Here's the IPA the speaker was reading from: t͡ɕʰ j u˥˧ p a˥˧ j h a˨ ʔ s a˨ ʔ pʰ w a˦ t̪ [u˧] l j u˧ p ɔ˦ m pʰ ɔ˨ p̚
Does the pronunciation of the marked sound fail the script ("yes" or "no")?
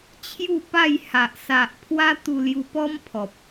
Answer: no